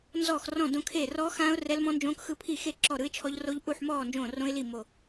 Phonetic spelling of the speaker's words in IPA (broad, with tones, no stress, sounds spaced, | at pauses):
n z ɔː˥˨ x r ɔ̃˥˨ d õ˦˥ kʰ eː˥˨ r ɔ˦˥ x ãː˦˥ ʊ̯ r ɛ˦˥ l m ɔ̃˦˥ n d͡ʒ õː˦˥ k x ɯ˥˨ pʰ i˥˨ x e˥˨ ǁ ɔ˥˨ ɾ ɯ˦˥ ɪ̯ t͡ʃʰ ɔ˦˥ ʎ r o˦˥ ʎ ʔ u˥˨ ħ m ɔː˥˨ n d͡ʒ õː˥˨ r õ˦˥ ɪ̯ l i˥˨ m o˥˨